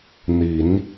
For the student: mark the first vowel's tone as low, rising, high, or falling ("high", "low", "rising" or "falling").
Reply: rising